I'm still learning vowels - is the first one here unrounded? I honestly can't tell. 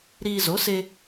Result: yes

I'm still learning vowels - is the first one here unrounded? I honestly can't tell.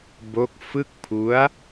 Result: no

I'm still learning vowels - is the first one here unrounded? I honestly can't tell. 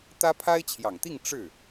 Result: yes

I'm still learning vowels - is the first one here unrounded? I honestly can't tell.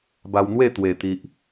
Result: yes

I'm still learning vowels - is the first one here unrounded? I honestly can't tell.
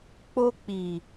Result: no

